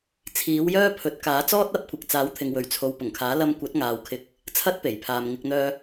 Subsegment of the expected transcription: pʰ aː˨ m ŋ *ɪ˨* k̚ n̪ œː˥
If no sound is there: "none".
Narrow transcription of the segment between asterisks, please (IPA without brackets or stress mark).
ɪ˧